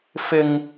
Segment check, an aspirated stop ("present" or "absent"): absent